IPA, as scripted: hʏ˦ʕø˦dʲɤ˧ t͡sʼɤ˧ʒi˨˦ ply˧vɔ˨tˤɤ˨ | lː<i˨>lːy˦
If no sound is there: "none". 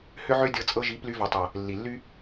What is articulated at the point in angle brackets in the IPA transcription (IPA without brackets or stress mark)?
i˨